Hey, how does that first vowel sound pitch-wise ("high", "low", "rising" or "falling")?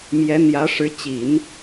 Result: rising